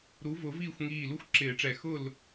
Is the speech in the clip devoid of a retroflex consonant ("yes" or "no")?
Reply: no